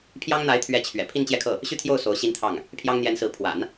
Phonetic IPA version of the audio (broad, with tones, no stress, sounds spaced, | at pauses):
pʰ j ɑ˥ ŋ n̪ a˧˥ ɪ̯ t̪ʰ ɥ ɛ˧˥ t͡ɕʰ ɥ ɛ̰˨˩ pʰ i˥˧ n t͡ɕ j ɛ˥˧ kʰ ɤ˥˩ | ɕ y˥˧ t̪ʰ j o˥˩ ʊ̯ s o˧˥ ʊ̯ ɕ i˥ n t̪ʰ ɑ˥˩ ŋ | pʰ j ɑ˥ ŋ n̪ j ɛ˧˥ n s ɹ̩˧˥ pʰ w a̰˨˩˦ n